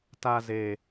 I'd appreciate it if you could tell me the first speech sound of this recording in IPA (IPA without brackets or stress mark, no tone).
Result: t